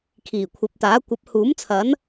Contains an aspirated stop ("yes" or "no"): yes